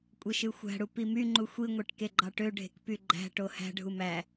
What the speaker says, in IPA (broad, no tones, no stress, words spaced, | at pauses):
kʷʼeʃɯxʷæ̤ɽu pimyŋ͡ǃu xʷiŋʷeʈ keɡ͡ǃɑʈøɖʱe̤k pyɡ͡ǃæ̤ʈo hæ̤ɖʱu mæ